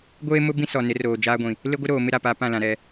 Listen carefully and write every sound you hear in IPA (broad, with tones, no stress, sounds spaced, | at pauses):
ɡʷ eː˦ m ʊ˦ b ĩ˦ s ɔ˨ n ɪ˨˦ r oː˨ d͡ʒ aː˦ ɡʷ ĩ˨ | l ɪ˦ ɡʷ ɪ˦ ɾ oː˨ m ɪ˦ ɾ a˨ p a˨˦ p ã˦˨ l ã˨ ɾ ɛ˦˨